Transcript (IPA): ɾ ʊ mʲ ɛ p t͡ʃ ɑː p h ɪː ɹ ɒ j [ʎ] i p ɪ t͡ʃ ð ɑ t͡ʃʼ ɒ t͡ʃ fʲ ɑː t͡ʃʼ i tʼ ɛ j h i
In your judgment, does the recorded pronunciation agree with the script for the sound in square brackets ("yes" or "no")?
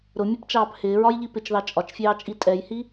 yes